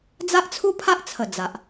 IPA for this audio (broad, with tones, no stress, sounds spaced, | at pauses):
d͡z a˦ ʔ t͡sʰ u˦ pʰ a˦ ʔ t͡sʰ ə˨˩ d͡z a˨ ʔ